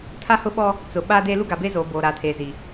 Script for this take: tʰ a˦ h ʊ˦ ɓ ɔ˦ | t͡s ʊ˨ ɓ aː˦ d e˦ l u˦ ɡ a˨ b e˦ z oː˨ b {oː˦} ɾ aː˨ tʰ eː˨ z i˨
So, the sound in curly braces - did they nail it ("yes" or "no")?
no